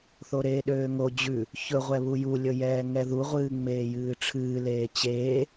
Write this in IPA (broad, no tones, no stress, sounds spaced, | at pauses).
θ o ɾ eː ɗ øː ŋ o d͡ʑ ʉ | ç ɵ ʁʷ ɛ β u j u lʲ ɵ j ɛː ŋ ɛ ð u ʁʷ ɨː ŋ͡m eː j ɨː ʈ͡ʂʰ ɨː l eː t͡ɕ eː